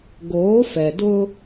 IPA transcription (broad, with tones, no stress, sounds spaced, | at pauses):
ɡ oː˨˦ f ɛ˨ d ʊ˦